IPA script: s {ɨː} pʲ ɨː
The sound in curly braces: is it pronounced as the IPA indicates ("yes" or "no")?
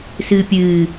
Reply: yes